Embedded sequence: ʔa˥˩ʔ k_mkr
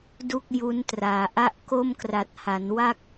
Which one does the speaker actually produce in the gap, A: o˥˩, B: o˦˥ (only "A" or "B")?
A